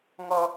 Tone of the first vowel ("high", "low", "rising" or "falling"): high